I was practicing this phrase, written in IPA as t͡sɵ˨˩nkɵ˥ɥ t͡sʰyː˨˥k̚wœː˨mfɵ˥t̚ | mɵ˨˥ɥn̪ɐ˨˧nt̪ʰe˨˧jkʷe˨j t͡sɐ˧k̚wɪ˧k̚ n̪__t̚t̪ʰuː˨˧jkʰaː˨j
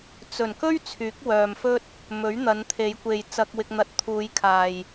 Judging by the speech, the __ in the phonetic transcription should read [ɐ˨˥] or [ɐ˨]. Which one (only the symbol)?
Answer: ɐ˨˥